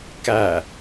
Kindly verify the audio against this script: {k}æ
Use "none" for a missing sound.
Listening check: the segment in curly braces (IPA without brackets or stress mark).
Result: k